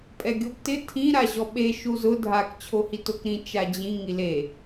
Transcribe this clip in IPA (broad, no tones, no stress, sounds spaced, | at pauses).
pʼ ɛ ɡʲ o b t ɪ tʰ ĩ ɾ a ʑ ɔ ɓ e ʃ u z ʊ dʱ a k t͡ɕʰ o h i t o k ɾ ĩ t͡ʃ a d͡ʑ ĩ ŋ i l e